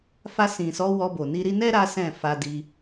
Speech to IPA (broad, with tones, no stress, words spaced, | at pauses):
fa˧sĩ˨sɔ˨˦ wɔ˧bo˨ni˧ɾi˦ nɛ˦ ɾa˦sɛ̃˦˨ fa˧di˧